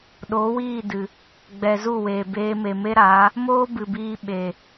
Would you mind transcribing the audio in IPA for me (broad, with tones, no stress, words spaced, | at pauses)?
ɗo˨˦wiː˦˨dɨ˨ | ɡ͡bɛ˨zu˦˨ weː˨beː˧ me˨me˦ɾaː˨˦ | moː˦ bɨ˨biː˧ ɓe˨